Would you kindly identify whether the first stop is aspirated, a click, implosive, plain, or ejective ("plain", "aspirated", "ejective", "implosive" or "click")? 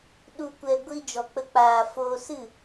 implosive